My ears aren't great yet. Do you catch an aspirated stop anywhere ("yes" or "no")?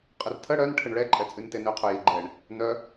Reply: yes